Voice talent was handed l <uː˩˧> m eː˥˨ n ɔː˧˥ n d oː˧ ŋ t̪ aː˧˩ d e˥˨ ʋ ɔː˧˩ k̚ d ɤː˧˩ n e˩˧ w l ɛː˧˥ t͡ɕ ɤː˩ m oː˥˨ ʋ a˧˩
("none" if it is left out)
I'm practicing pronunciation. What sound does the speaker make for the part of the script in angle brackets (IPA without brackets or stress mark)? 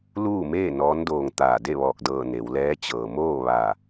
uː˥˨